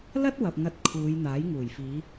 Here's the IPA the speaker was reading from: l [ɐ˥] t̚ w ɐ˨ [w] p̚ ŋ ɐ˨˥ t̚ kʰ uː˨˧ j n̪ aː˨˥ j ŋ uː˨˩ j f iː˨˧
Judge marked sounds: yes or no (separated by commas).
yes, no